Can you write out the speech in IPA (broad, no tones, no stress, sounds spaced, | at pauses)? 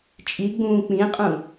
t͡ʃʼ i ɡ͡b ũː k͡p ĩ qʼ ũ